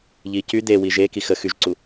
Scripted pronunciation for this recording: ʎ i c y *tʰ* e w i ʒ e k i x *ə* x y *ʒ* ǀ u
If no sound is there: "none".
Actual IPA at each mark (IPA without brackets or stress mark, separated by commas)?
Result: d̪, ə, ʒ